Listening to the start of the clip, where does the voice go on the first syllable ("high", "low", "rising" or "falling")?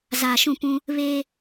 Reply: low